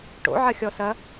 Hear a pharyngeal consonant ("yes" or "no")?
yes